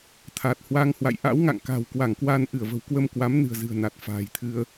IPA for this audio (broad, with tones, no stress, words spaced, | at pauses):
t̪ʰa˨˩t̚hwa˧ŋhwa̰˧˨j ʔa̰˧˥wŋa̰˧˨ŋka̤˨˩w kwa˧˩ŋkwaː˧nʔɨ˧˩ə̯və̤˨˩w kwə˧mkwa˨˦m nɨ̤˨˩ə̯ zɨ̤˨˩ə̯na˨˩t̚ fa̤ː˨˩jt̪ʰɨ˧ə̯